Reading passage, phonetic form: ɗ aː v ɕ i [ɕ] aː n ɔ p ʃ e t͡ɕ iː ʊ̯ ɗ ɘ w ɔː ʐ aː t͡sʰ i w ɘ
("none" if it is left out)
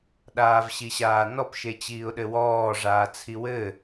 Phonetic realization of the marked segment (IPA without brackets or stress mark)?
ɕ